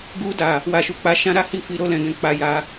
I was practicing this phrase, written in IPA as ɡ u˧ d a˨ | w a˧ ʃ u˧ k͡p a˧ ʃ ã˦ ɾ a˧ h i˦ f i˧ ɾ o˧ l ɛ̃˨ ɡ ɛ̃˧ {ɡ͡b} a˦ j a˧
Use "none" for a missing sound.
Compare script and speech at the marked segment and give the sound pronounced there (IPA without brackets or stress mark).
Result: k͡p